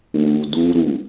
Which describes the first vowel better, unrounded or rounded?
rounded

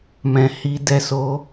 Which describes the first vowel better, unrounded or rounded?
unrounded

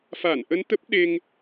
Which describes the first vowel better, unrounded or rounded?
unrounded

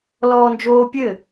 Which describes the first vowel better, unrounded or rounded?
rounded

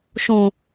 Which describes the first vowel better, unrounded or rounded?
rounded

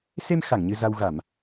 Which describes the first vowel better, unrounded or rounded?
unrounded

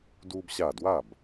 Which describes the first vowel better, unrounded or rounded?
rounded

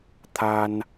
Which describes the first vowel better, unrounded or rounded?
unrounded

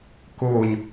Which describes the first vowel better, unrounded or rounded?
rounded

